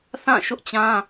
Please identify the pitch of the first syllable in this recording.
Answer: falling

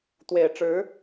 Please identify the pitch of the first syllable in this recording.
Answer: low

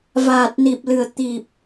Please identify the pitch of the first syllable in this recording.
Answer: low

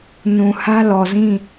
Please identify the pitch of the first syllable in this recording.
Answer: low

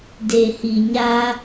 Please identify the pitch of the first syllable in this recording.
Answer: low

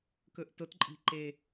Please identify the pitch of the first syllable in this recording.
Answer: low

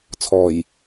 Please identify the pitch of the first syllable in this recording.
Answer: low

